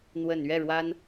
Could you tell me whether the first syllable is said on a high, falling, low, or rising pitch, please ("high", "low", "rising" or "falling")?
low